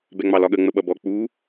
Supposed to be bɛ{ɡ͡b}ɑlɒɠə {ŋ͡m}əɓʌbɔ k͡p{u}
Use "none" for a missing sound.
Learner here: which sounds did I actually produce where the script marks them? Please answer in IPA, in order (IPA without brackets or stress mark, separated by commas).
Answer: ŋ͡m, ŋ͡m, u